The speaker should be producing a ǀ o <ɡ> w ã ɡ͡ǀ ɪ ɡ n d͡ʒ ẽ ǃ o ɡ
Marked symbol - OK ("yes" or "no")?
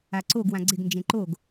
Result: yes